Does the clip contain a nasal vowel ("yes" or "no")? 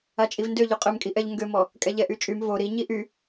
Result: no